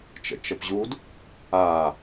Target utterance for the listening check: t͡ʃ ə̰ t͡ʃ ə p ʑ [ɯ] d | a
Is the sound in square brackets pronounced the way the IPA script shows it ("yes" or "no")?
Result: no